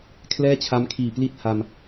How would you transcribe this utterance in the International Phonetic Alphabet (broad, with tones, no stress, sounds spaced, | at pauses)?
kʰ l ɛː˥˩ t͡ɕʰ a˦˥ m kʰ iː˨˩ p l i˥˩ t̚ h a˧ m